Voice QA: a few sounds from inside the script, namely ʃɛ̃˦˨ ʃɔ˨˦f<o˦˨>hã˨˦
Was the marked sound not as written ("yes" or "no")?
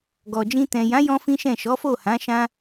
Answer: no